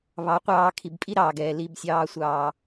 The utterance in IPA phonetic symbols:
β ɑ˨˦ qʷ ɑː˧ kʰ i˨ b pʼ i˦ ɾ ɑː˨ ɡ ɛː˨ l i˨ b sʲ ɑː˨ sʷ ɑː˨

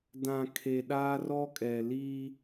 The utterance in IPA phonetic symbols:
d ã˨ kʰ e˨ ɗ aː˦ r ɔ˦ kʼ ɛ˨ l i˦

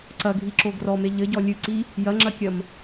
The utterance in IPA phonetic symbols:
ǀ ɐ ɡʱ i ǁ o ɡ r ɔ m e ʎ ɘ ɟ ɔ lʲ ɨ ǀ i | j ɐ ŋ͡ǁ ɐ kʲ ɐ m

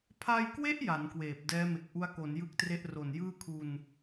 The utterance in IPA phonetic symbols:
pʰ a˧ j k w e˦˥ ʔ j a˩˦ n k w eː˨˩ p̚ d ɛː˦˥ m e˨˩ k̚ ʔ u˦˥ a̯ k o˩˦ n j ɯ˦˥ k̚ t r e˦˥ ʔ r o˨˩ n j ɯː˥˩ kʰ u˧ n

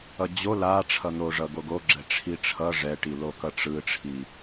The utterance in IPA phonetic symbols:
ʌ d͡ʑ o l a ʈ͡ʂʰ ʌ n̪ o ʐ ʌ ɡ o ɡ o ɡ͡ǁ ɛ ʈ͡ʂʰ i ʈ͡ʂʰ ʌ ʐ ɛ ʈ i l o k ʌ ʈ͡ʂ ɯ ʈ͡ʂʰ i

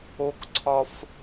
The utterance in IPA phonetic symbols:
o k ǀʰ ɒ f

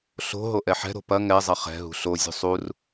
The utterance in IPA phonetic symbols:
ɬ o̤ ɦ o ʔ ɛ ħ ɛ̤ ɾ o̤ p ɐ ŋ ɛ zˤ ɐ χ ɛ̤ ɦ ṳ ɬ o zʲ ṳ sˤ u r

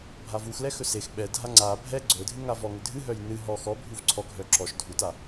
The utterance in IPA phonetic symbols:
bʱ a v u x l ɛ x ɵ s e x ɓ ɛ dʱ a ŋ͡ǀ a bʱ ɛ ɡ͡ǀ ɵ dʱ ɨ ŋ a v ɔ ŋ ʏ dʱ ɨ ɦ œ j n ɨ ɦ ɔ x ɔ bʱ u v ǀʰ ɔ ɡʱ œ ǁ ɔ ʃ dʱ u t a

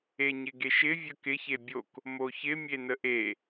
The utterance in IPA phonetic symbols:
e ɲ ɪ ɡ e ʃ ɪ vʲ ə k ɪ ç e bʲ o k | m o ç ɪ mʲ e n ə ʔ e

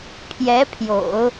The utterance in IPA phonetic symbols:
pʰ j ɛ˧˥ pʰ j o̰˨˩˦ ʊ̯

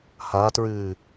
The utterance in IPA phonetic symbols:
h a t ɹ ɨː

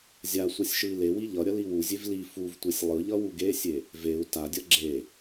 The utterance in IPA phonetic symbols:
zʲ a sʷ ʌ sʲ ʃ ɯ i̯ l e w i ʎ ʌ ɾʲ ʌ l i w u zʲ e v l i f u v tʷ e sʲ lˠ ɯ ʎ ʌ w u ɡ e sʲ e | v e u̯ t a dʲ ʌ ɡ͡ǁ e

